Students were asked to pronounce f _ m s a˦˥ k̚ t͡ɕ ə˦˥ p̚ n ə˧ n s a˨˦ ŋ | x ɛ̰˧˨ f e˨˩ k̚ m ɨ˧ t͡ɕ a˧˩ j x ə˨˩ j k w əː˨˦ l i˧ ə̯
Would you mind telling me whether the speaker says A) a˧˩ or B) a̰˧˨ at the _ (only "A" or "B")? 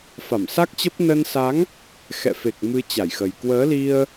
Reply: A